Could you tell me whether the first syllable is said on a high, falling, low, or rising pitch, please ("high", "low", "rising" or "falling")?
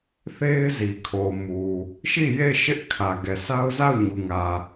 high